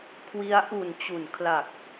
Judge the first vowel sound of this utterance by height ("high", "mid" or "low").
high